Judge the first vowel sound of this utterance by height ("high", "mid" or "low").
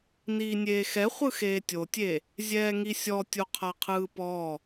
high